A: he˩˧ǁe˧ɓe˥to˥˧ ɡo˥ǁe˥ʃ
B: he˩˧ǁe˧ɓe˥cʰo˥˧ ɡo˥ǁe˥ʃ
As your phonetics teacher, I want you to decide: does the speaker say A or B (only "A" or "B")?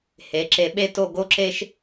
A